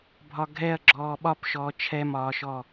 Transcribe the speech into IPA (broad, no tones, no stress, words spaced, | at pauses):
bʱɒɡʱɛɐ̯ ɡ͡ǁɔːɓɒp ʃɔːt͡ʃʰɛmɒːʃɔ